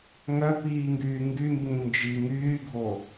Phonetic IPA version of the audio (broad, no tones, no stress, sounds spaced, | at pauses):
ŋ œ p iː ŋ ɡ yː ŋ ɡ y m b ĩ n d͡ʒ i ŋ yː ɡʱ o